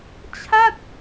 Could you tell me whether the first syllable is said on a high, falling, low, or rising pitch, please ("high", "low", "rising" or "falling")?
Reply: falling